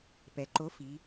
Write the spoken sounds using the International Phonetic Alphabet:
p ɛ˩˧ ǃ o˨˥ f i˩˧

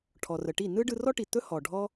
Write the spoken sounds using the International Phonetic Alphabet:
ʈʰ ɔ˩ r ə˩ ʈ i˥˩ n ɯ˥ ɖ ɯ˧ r ɔ˥ ʈ i˩ t̪ ɵ˥ h ɔ˩ ɖʱ ɔ˥

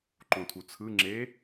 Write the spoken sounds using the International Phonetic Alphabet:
ǃ õ tʰ u t͡sʰ ɯ ŋ͡ǁ e

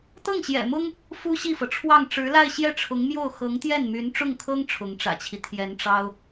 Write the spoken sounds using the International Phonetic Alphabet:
t̪ ɤ˥˩ ŋ ɕ j ɛ̰˨˩ m ʊ˥ ŋ | f u˥ ɕ i˥˩ f ɤ˩ ʈ͡ʂʰ w ɑ˥˩ ŋ ʈ͡ʂ ɻ̩˧˥ l a˥˧ ɪ̯ ɕ j ɛ˥˩ ʈ͡ʂʰ ʊ˧˥ ŋ m j o˥˩ ʊ̯ x ɤ˧˥ ŋ t̪ j ɛ˥˩ n m y˧˥ n ʈ͡ʂ ʊ˥˩ ŋ kʰ ɤ˥ ŋ ʈ͡ʂʰ ʊ˧˥ ŋ ʈ͡ʂ ä̰˨˩ t͡ɕʰ i˦ t̪ʰ j ɛ˧˥ n ʈ͡ʂ ɑ˥ ʊ̯

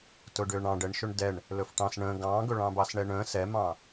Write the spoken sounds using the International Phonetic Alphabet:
t ʊ ɖ ʏː ɳ ɑ̃ ɖ ɛ ɳ ʃ ɵ ɳ d ɛ ɳ | l ɵ f ʈ ɑ̃ s ɳ ə̃ː ɡ ɑ̃ː ɡ ɵ ɭ ɑ̃ b ɑ s ɳ ɛ ɳ ə̃ː s ɛ m ɑ̃

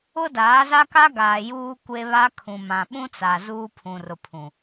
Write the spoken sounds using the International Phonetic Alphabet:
ʊ˦ d aː˨˦ z a˦ k a˦ ɡ aː˨ j uː˦ kʷ e˦ β a˦ kʰ ũ˨ m ã˨ ɓ ũ˦ t͡s a˨ z uː˦ pʰ ũ˨ r ʊ˨ pʰ ũ˨

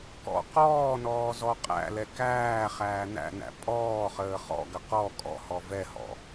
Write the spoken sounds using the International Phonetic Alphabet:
k ɔ̰ q ɔː n ɔː z ɔ qʼ æ̰ l ɛ k æː χ æː n æ̰ n æ̰ pʼ ɔː χ əː χ ɔ̰ ɡ ə q ɔ kʼ ɔ̰ h ɔ v ɛ h ɔ̰

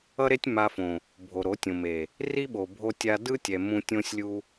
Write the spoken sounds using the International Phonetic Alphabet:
ʌ˦ ɾ e˦ tʲ m a˧ f õ˨ | bʱ o˨ ɾ o˨˦ tʲ õ˨ m e˨ | r i˦ ɓ o˨ bʱ o˧ tʲ a˧ d ɯ˦ tʲ ɛ˨ m ũ˧ tʲ õ˦ sʲ lʲ u˦

